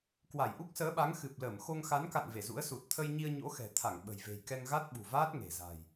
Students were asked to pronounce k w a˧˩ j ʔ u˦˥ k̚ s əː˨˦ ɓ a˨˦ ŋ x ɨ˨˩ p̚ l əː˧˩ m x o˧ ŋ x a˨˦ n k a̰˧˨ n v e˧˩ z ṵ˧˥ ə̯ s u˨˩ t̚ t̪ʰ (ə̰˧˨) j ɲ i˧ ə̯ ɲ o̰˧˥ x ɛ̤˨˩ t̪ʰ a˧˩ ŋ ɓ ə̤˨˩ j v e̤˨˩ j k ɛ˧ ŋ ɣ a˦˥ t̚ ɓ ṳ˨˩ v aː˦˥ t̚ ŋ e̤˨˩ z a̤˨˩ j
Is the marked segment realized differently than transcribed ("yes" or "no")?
yes